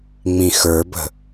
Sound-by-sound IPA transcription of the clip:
ŋ͡m ĩ x ə˞ b ə̤

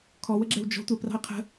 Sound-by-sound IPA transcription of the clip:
kʰ ɔ w ə ɡ͡ǁ ɛ w d͡ʒ ɔ̤ tʷ ɛ p r ɑ̤ ɪ̯ qʰ ə̤

